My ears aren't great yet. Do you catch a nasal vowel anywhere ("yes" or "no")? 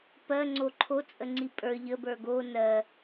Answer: no